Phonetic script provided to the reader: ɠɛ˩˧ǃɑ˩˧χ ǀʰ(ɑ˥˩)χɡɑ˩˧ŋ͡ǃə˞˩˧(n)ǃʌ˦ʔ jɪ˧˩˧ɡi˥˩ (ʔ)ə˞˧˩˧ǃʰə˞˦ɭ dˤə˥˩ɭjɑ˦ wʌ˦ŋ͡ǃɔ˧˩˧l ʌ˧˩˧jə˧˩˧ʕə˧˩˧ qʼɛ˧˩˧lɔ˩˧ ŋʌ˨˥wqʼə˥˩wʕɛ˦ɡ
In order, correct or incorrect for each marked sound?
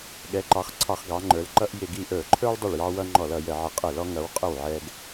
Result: incorrect: ɑ˧˩˧, incorrect: l, correct

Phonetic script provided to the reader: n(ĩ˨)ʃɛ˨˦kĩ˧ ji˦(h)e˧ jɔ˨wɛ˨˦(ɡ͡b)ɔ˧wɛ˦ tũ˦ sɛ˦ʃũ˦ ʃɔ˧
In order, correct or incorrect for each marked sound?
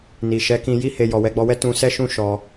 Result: incorrect: i˨, correct, correct

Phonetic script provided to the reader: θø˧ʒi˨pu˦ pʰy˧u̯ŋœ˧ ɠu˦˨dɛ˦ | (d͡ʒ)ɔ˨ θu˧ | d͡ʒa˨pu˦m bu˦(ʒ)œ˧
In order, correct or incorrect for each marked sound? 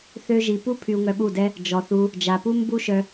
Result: correct, incorrect: ʃ

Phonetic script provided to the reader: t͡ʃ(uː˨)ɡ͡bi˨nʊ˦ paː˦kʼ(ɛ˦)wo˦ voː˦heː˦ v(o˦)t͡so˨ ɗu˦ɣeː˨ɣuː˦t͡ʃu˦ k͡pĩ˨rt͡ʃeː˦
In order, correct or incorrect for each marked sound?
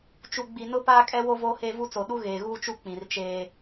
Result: incorrect: u˨, correct, incorrect: u˦

